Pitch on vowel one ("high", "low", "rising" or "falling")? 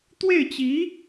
falling